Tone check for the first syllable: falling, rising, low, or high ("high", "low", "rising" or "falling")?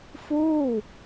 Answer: falling